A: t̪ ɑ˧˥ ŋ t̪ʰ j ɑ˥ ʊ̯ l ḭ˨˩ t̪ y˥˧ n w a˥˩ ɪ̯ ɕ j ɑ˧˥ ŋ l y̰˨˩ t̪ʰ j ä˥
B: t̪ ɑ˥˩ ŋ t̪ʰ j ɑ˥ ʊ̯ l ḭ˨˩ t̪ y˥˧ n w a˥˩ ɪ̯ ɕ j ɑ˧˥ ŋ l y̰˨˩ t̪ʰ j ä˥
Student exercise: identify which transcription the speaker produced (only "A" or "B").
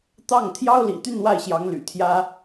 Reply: B